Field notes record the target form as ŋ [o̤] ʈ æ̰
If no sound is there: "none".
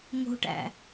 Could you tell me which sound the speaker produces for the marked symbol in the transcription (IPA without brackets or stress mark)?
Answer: o̤